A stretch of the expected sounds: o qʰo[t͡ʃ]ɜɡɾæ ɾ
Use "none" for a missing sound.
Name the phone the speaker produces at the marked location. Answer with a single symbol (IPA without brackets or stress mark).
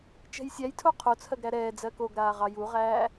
t͡sʰ